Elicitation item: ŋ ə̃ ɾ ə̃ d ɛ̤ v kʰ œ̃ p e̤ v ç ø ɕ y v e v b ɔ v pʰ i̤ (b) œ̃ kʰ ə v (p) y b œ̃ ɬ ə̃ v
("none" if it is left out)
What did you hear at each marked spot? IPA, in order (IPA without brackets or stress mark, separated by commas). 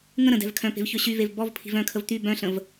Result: v, t̪